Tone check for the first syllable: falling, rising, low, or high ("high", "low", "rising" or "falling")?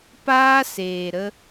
high